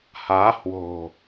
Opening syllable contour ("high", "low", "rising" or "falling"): rising